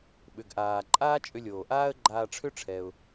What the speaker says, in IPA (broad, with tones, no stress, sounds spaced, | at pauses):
ɓ ʏ˩ ɡ ʔ aː˩ ǃʼ aː˥ t͡ʃʼ ʏ˧ lʲ oː˩ ʔ aː˥ ə̯ ɡ͡ǃ aː˧ ʈ͡ʂʰ ʏ˥ ʈ͡ʂʰ ɛ˩ ʊ̯